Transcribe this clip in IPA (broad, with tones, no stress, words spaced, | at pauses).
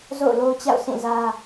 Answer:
zo̰˦˨ʊ̯lo˦ʊ̯t͡ɕa̰˦˨ʊ̯ sĩ˦˨zä˦